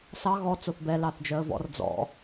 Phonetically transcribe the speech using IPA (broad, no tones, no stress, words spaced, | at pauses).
sɑ ɣɔ t͡soθbɛ lɑθd͡ʒœə̯vɔ̰r d͡zɔ̰